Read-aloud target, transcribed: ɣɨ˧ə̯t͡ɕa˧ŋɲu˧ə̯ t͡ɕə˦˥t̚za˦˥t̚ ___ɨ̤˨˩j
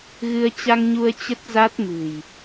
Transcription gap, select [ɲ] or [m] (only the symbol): m